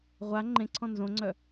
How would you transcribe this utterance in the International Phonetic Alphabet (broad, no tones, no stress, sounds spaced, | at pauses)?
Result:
ʁʷ a ŋ͡ǃ ẽ ǀʰ ɔ̃ n z õ ŋ͡ǀ œ